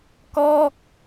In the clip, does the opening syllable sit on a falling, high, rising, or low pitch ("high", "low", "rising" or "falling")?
falling